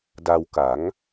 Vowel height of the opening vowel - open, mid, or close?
open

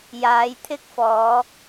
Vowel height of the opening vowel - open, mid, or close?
open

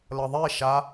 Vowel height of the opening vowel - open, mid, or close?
mid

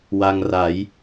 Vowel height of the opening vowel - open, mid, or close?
open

